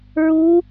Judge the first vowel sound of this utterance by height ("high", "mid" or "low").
high